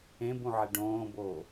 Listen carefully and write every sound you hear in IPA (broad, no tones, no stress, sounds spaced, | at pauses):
ẽ b ũ ʕ e ɖ õː b oː